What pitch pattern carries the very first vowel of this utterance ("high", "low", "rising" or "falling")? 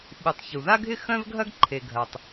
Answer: low